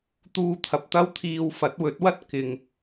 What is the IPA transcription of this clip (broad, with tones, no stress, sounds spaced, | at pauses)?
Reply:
t̪ uː˧ t̪ʰ ɐ˨ p̚ t̪ ɐ˥ w t̪ʰ iː˧ w f ɐ˨˥ t̚ w ɵ˨˥ t̚ w ɐ˥ t̚ k ɪ˨ ŋ